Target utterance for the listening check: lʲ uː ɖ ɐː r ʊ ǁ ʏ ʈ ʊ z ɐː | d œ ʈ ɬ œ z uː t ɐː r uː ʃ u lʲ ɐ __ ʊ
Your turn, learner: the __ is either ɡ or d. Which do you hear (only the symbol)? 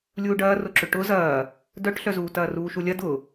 d